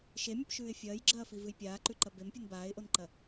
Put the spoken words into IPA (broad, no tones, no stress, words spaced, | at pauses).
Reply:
ʃemʲɨpʃʉːɪ̯ fʲɐːjɡ͡ǁɐːfivɨj pʲaːǃʉǃɐ bempʲɨn baːɪ̯ʔonǃɐ